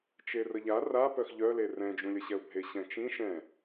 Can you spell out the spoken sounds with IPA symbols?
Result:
t͡ʃerəʎa ra pœxʎœle rɛ̃d͡ʒũlʲəɕɛʊ̯ bʱeɕɛ̃t͡ʃĩ ʃɛ̃

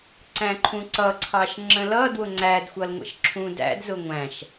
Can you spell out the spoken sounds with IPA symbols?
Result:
ǀæ̃ǃʰũǀʌǀʰɑʃ ŋ͡ǁə̃lʌdwʊ ŋ͡ǀædxʷʌlŋʷə̰ʃ ǁʰũdæ̰d zʊŋʷæ̃ʃ

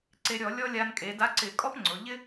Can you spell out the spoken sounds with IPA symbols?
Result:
ǀe˧ɾʲɔ˧˩˧ lʲɔ˥ lʲa˧nkʼe˩˧da˧˥ǀɪ˧˩˧ kʼɔ˥pŋ͡ǀʊ˩˧ ʎɪ˥

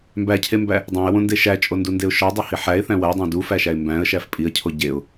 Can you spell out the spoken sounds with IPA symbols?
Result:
mbæcʰembæ | dˤæ̃ə̯wõnde ʃæt͡ʃʼondundeʊ̯ ʃɒdˤohi ħæɪ̯θæ̃ wædˤæ̃ dufæʃæɪ̯ mbæ̃ə̯ʃæf pʼiə̯cʰo ɟeʊ̯

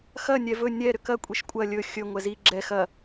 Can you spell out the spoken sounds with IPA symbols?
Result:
xɐ nʲɛvɵ nʲɛ ɾʏkɐ kʷʼiʃkʷʼɐ lʲɵ xʲɵ ŋʷɛzi ɡ͡ǁɛ xɐ

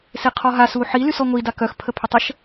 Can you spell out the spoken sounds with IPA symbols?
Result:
seqʰɔɦa suħi lysɔŋʷi dakœx pʰəpʰytˤəʃ

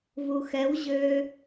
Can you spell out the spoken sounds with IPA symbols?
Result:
vuxɛw ʑø

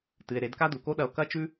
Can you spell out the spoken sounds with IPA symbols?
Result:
tɨ˩e̯ɾe˩˧d ka˥du˩ko˥ɗɐ˧o̯ kɐ˥t͡ʃʉ˥

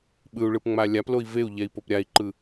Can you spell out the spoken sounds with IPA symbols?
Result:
ɓɯu̯ɭɯpŋ͡ma lʲaploi̯ veu̯ʎɛi̯pop ɾʲai̯ǃɯ

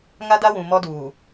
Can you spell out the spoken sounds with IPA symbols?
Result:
ŋa˦da˦wũ˨ mɔ˦duː˨

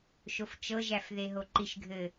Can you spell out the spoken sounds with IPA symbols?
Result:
ʃoft͡ʃɤʒæf ðeɦoǃiʃɡʱɘ

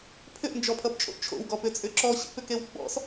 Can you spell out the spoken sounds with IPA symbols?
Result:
pʰʏʔnd͡ʒɔpʰʌpt͡ʃʼo̰ʔ t͡ʃʰo̰wɡɔpʏt͡sʼʏ ǁɔɕḭpʏkew ɡ͡bɔ̰s

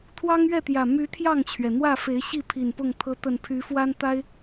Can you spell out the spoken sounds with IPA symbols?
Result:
t̪ʰwɑ˦ŋɥɛ˥˨t̪jä˨˩ my˨˦ t̪ʰjɑ˥˨ŋt͡ɕʰɥɛ˩ n̪wä˥˨ fe˨˦ɪ̯ɕi˥˨ pʰi˨˩npʊ˥˨ŋt̪ʰɤ˦ t̪ə˨˩npʰy˨˦fwa˦n t̪a˦ɪ̯

